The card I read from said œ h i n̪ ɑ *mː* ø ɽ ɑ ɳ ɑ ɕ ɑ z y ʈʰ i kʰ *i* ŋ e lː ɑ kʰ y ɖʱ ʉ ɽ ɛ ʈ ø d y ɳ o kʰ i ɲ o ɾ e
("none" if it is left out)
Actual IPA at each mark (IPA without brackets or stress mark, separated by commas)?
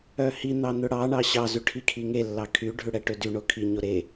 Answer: n̪, i